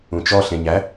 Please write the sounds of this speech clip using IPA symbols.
ũt͡ʃɔ ɬẽɲæ

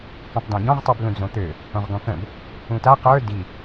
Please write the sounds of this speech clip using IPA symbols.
kõtˤdãɟɔ̃ʁtˤyb lũd͡zõt̪ø | õʁɡɔ̃kə̃b | ũta qə˞ di

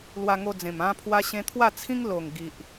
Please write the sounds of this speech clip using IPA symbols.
lwa˧ŋo˧d͡zẽ˨˩m ã˦pʰwa˦ɕẽ˦ t̪ʰwa˥˧t͡sʰĩ˦ŋlo˨˩ŋ ɡi˨ʔ

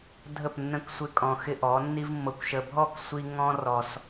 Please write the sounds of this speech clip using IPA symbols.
dʱə˦˨pnːə̃˦k sʷɪ˧kʼɔ̃˨xɪ˧ ʔɔ˨˦nːi˦vmːɤ˧kʷʃə˧ bʱɔ˦˨ksʷi˧ ŋɔ̃˦ rɔ˧s

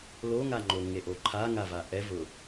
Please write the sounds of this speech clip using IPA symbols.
loŋaŋ͡ǃo ŋeʔoǃʰa ŋavaʔɛ vʊ

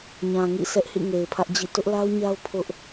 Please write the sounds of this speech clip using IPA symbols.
ɲã˨ŋḭ˦˨ sʰɛ˦ʔhḭ˦˨ ŋe˨ɪ̯pʰä˦ʔd͡ʑḭ˦˨ tʊ˦ʔla˦ʊ̯ɲa˦ʊ̯ pʰʊ˦ʔ

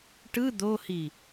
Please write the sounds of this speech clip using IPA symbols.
ʈɯ d̪ohi

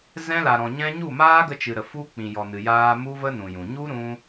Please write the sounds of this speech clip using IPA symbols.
zɛ̃˧la˨ɾɔ̃˨ɲɛ̃˧ ɲu˦˨maː˦ɡə˧t͡ʃɨ˨ ɾə˨fu˧k͡pĩ˨ jɔ˨nɨ˨jaː˧ mu˦və˦nũ˨jũ˨ ɲu˦ ɾũ˦

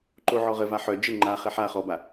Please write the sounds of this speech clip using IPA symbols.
ǃoʕɔʁəva ħœ d͡ʒə ŋ͡ǃaχɛ ħa χɔba

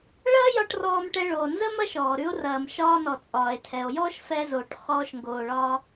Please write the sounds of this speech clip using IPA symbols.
ɭɐː˥jɒ˧ʈ rɔː˧mʈɛ˧ ɭoː˩nzə˥ mɐ˥ʃɔː˩ ɾʉ˧o̯rɐː˩m ʃɒː˧nɔ˩ t͡sʼɒː˩e̯tʰɛ˩o̯ jɔː˥ʃfɛ˧zo˩ʈ χɔː˧ʃŋɡoː˩ɭɒ˧

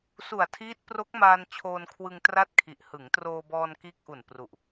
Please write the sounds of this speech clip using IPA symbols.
su˨˩a̯tʰiː˦˥t̚ pro˦˥k̚maː˧n t͡ɕʰoː˧nkʰwɯ˧ŋ tra˥˩t̚kʰi˨˩ʔ hɯ˩˦ŋtroː˧bɔː˧n kiː˦˥k̚ʔu˨˩n pru˨˩ʔ

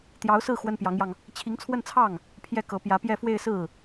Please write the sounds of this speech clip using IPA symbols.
t̪jɑ˧˥ʊ̯sɹ̩˥˩ xwə˥npjɑ˧˥ŋjɑ˧ŋ | t͡ɕʰi˧˥ŋt͡sʰwə˥˧nt͡sʰɑ˥˩ŋ | pʰjɛ˥˩kɤ˧˥ pjä˧˥pjɛ˥˧ fwe˥˧ɪ̯sɹ̩˥˩

